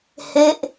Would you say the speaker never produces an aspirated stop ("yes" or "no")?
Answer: yes